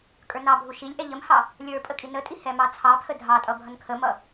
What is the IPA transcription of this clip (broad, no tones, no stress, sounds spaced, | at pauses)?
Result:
kʼ ə˞ n ɑ bʱ u ʃ i lʲ ʔ ɛ ʎ ə m h ɑ | lʲ ə˞ pʼ ə kʼ i n ə tʼ i h ɛ m ɑ t͡sʰ ɑ pʰ ə dʱ ɑ tʼ ʌ bʱ ʌ n kʰ ə m ʌ